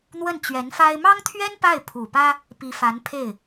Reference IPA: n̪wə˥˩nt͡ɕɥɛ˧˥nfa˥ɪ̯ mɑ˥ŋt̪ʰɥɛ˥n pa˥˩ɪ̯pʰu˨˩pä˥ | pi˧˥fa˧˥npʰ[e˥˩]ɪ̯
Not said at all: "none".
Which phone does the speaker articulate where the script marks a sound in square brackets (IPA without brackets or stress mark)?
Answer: e˥˩